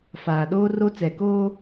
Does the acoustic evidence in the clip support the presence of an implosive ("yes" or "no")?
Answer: yes